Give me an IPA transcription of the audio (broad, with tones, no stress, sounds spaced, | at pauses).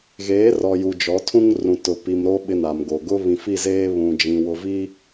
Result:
ɣ eː˨˦ r ɔ˨ j u˨ d͡ʒ ɔ˨˦ tʰ ũ˦ ŋ r ũ˨ t ʊ˨ p i˨ m ɾ o˦ ɓ ɪ˦ n a˨ m ɡ o˨ ɡ ʊ˦ β ĩ˨ f i˦˨ z eː˦ β ũ˨ d͡ʒ ĩ˨ w ʊ˨ v i˦